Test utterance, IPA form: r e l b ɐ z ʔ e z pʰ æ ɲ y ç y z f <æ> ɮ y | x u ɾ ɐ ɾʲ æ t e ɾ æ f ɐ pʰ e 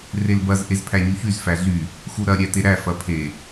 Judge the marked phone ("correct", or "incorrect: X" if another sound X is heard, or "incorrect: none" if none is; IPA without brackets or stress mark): correct